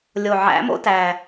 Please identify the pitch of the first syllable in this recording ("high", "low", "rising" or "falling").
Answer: low